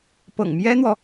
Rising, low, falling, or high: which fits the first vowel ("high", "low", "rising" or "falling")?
low